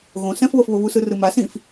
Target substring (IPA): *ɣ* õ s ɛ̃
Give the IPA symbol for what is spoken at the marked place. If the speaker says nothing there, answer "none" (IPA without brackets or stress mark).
ɣ